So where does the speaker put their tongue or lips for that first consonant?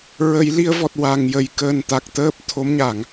tongue tip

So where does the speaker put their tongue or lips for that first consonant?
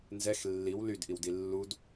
tongue tip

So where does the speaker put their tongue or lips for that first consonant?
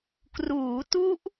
velum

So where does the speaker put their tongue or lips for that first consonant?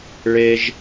retroflex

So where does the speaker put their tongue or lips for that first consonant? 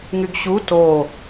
velum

